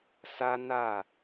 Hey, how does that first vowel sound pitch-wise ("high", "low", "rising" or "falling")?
high